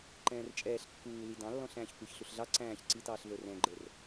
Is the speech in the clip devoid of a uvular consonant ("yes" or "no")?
yes